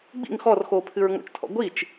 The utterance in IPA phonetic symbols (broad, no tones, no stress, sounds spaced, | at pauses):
ɡ͡b ḭ ŋ x ɔ r x oː pʰ ɨ ɹ ŋ o̰ t͡ʃ tʰ ɔ̰ ɡʷ i t͡ʃ